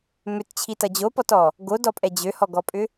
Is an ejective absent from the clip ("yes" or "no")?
no